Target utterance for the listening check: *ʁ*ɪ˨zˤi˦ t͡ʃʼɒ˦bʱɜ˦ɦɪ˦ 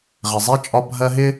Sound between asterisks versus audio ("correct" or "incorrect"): correct